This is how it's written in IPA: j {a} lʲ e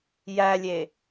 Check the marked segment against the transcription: incorrect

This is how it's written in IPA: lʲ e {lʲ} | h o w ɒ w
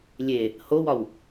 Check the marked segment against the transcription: incorrect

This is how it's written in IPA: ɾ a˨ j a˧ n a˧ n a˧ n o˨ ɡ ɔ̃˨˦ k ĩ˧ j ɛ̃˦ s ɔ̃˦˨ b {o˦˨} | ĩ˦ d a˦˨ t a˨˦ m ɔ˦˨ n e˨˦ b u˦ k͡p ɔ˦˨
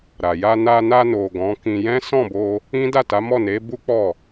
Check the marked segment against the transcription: incorrect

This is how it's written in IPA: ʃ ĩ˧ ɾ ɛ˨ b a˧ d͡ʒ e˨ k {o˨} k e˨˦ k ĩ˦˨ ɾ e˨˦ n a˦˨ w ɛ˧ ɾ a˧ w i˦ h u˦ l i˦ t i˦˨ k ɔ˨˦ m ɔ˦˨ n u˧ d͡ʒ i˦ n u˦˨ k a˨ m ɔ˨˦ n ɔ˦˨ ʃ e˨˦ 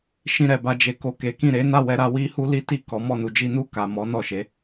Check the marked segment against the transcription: correct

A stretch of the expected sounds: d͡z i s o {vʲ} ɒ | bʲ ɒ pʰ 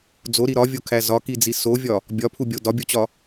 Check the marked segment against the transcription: correct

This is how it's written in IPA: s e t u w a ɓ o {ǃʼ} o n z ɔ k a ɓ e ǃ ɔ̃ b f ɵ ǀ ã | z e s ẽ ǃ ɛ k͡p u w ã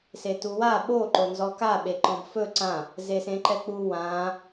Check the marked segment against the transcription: incorrect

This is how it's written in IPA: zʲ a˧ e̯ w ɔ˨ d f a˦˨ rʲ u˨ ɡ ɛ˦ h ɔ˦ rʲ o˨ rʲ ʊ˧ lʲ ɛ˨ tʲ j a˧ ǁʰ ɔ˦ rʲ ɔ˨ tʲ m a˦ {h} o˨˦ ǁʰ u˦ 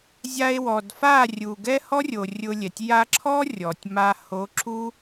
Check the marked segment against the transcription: correct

